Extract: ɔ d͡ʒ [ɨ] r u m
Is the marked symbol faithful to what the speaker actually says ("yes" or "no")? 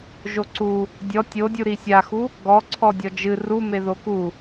yes